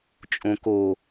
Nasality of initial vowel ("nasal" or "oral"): nasal